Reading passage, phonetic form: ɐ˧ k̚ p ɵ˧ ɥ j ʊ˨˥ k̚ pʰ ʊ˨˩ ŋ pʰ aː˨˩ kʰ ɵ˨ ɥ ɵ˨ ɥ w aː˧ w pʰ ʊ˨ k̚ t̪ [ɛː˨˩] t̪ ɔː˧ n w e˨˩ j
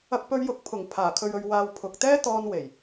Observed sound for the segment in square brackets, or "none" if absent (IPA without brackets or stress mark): ɛː˥